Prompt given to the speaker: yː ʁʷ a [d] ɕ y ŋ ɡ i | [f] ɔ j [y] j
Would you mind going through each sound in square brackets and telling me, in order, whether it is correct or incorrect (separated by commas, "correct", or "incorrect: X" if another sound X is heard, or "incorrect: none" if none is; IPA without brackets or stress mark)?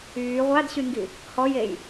correct, incorrect: h, incorrect: e